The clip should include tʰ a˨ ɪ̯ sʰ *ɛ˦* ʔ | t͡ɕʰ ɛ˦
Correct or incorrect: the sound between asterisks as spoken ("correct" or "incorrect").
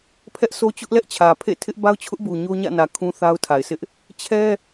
incorrect